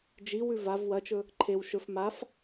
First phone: d͡ʒ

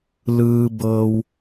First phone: l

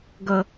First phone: ɡ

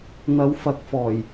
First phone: n̪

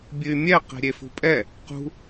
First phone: bʲ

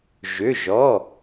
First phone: ʒ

